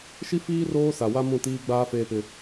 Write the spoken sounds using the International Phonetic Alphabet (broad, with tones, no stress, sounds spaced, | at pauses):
ʃ i˦ f iː˦ r oː˦ s a˨ w a˦ m ũ˦˨ t iː˦ ɡ͡b aː˦ f eː˦ p ɪ˦